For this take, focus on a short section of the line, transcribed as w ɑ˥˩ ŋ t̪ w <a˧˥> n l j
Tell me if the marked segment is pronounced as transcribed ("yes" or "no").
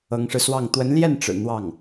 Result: no